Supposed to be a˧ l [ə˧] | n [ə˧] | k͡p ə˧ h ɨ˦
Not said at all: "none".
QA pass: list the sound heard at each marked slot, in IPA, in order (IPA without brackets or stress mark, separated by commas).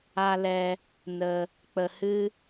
ɛ˧, ə˧